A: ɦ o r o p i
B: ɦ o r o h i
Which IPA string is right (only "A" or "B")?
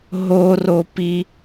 A